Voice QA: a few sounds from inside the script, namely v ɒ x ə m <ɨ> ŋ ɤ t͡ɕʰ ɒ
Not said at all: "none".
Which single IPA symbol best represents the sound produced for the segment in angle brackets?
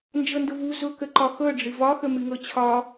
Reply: ɨ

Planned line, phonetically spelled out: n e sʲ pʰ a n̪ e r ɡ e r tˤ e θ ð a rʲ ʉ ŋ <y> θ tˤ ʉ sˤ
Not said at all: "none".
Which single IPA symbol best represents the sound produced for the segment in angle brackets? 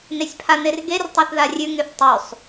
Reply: y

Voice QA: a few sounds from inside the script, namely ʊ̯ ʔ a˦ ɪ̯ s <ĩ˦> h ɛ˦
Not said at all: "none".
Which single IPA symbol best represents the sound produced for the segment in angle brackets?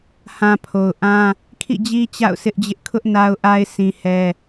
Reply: ĩ˦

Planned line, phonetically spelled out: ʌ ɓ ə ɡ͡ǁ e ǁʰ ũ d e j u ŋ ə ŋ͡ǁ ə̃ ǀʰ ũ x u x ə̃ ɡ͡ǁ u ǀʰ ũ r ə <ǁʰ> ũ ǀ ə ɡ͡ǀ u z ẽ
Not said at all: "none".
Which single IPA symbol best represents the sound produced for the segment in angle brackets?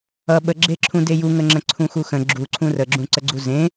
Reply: ɡ͡ǁ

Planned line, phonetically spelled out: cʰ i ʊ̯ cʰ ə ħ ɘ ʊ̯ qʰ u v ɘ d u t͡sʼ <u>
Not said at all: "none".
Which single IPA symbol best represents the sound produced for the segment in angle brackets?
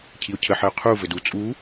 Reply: u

